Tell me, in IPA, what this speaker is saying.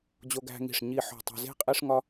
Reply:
d͡ʑ o˧ ɡ æ̤˧ ŋ i̤˧˩ ʂ ɲ i˧˩ ħ o̤˧˩ tˤ e̤˧ z e̤˥˧ qʼ i˥ ʂ ŋ ɒ˥

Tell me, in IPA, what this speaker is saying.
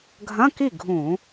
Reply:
ɡʱ ɐ̃˧˥˧ k i˥˩ ɡʱ ũ˧˩˧

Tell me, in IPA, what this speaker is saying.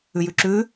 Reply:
ʉ j ʉ ǁ ʉ

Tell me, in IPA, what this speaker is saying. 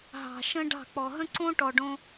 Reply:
ɦ ɑ̤˨ ʃ ə̃˦ ɖ ɑ̤˦˨ k͡p ɔ˨ ɦ ə̃˦ ǀ õ˦ ʈ ɔ˨ ɖ õ˧

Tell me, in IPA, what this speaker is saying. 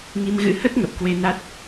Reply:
ŋ i˧ m ɣ ɨ̰˧˥ h ə˦˥ t̚ ŋ ə˨˩ p̚ k w e˧ n a˦˥ t̚

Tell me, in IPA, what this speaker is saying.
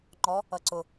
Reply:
ŋ͡ǃ ɔ | ʌ ǀ ʊ

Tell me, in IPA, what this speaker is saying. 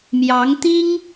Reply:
m j ɑ˧˥ ŋ t̪ i˥ ŋ

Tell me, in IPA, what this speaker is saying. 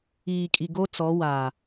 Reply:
iː˨ kʼ i˨ ɡ o˦ t͡s ɔ˨˦ w aː˨

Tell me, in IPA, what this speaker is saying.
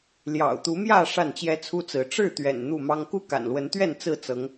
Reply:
l j ɑ̰˨˩ ʊ̯ t̪ u˨˦ m j ä˥˨ ʂ a˥˨ n t͡ɕ j ɛ˦ t͡sʰ u˦ t͡s ɹ̩˨˦ ʈ͡ʂ ɻ̩˥˨ t̪ ɥ ɛ̰˨˩ n n̪ u˥˨ m ɑ˦ ŋ k u˦ k a̰˨˩ n l w ə˨˦ n t̪ ɥ ɛ˥˨ n t͡s ɹ̩˥˨ t͡s ɤ˨˦ ŋ

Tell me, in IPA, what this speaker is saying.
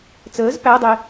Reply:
t͡s əː z p æ dˤ e

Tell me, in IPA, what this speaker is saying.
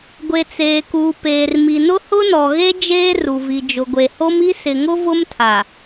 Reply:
ɡʷ e˨ t͡s eː˨ k uː˨ p eː˨ r m i˨ n ʊ˦ h ʊ˦ n ɔ˨ ɣ e˦ d͡ʒ eː˦ r u˨ v i˨ d͡ʒ ʊ˨ ɡʷ e˨ h o˦ m i˦ s ɪ˨ ŋ ʊ˦ v ʊ˦ m tʰ a˨

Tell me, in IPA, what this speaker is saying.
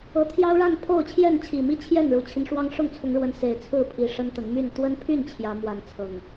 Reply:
ɤ˨˦ t̪ʰ j ɑ˦ ʊ̯ ɻ a˥˨ n pʰ o˥˨ ʊ̯ t͡ɕʰ j ɛ˥˨ n t͡ɕʰ i˨˩ m i˥˨ t͡ɕʰ j ɛ˥˨ n ɻ u˨˩ t͡ɕʰ i˦ n ʂ w ɑ˦ ŋ ʂ ʊ˥˨ ŋ t͡sʰ ʊ˨˦ ŋ ɻ w ə˨˦ n s e˨˩ ɪ̯ t͡sʰ ɹ̩˥˨ pʰ i˨˦ ʂ ə˦ n t̪ ə˨˦ n m y˥˨ n t̪ w ə˦ n pʰ y˥˨ n t͡ɕʰ j ä˨˦ m w a˨˦ n t͡sʰ ɤ˨˩ ŋ

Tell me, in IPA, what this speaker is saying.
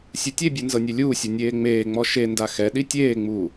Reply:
sʲ u tʲ e bʲ u n z ɤ nʲ e lʲ uː sʲ o nʲ eː ŋ͡m eː ŋ͡m ɔ ʃ e n d a x ɛ ɗ i tʲ eː ŋ͡m uː

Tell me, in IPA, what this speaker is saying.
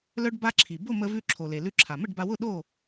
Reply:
l œ˧ ɖ b a˧ ǁʰ i˩ b ʊ˥˨ m ə˧ v ʉ˧ ǁʰ o˩ l e˩ l ʉ˧ ǁʰ a˩ m ə˥˨ ɖ b a˧ w ʊ˥˨ ɗ o˥˨

